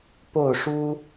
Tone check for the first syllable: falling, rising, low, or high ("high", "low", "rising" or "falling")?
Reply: falling